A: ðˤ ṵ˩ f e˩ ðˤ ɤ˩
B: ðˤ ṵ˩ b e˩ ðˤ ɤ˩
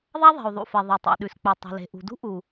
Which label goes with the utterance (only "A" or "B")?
A